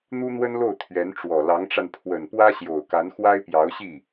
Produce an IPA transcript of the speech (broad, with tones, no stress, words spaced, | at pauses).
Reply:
n̪u˥n̪wə˥nlo˥˩ʊ̯ t̪ʰɥɛ˧˥nʈ͡ʂwɔ˨˩ lɑ˧˥ŋʈ͡ʂa˧n pʰwə˨˩npwä˥ɕjo˨˩ʊ̯ka˧˥n xwa˥ɪ̯pjɑ˧˥ʊ̯ɕi˥˩